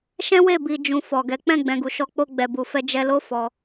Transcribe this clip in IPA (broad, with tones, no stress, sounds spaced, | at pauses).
ʃ ɛ̃˦ w e˦˨ b i˨ d͡ʒ ũ˨ f ɔ˨ ɡ ɛ˨˦ k͡p ɛ̃˦˨ ɡ͡b ɛ̃˨ ɡ u˨ ʃ ɔ˧ k͡p o˧ ɡ͡b ɛ˨ b u˨ f ɛ˧ d͡ʒ ɛ˧ l o˦ f ɔ˧